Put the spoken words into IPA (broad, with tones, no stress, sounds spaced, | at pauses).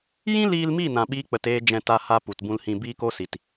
j ĩ˦ l iː˧ l m i˦˨ n ã˧ ɓ iː˦ k͡p ə˧ t eː˦ d͡ʒ ɛ̃˧ t a˧ h a˦ p u˨ t b ũ˧ l h ĩ˧ b iː˦ k o˦ s i˨ t